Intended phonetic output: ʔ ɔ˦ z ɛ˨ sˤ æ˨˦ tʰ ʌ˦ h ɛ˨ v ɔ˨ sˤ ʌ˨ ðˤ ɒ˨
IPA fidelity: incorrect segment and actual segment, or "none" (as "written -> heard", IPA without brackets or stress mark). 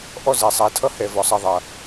ɒ˨ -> ʌ˨